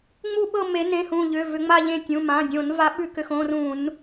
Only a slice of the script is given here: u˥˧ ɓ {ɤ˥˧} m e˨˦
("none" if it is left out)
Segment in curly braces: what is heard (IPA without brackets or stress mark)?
ɤ˥˧